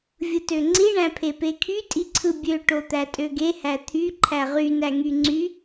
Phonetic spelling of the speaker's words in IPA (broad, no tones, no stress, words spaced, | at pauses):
vʲɯtøŋ͡ǀi ɳæ̃pʰepekʰy tʼiǀʰɯbʲø ʈot̪ætʼøɡe hæt̪ʰy ǃʰæʁy næŋyŋ͡ǀy